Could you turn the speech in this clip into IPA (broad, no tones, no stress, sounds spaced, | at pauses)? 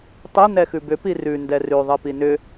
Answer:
tˤ i n ɛ x ʉ b ʏ p i r ʉ n d ɛ r ʉ ðˤ i p i n ʏ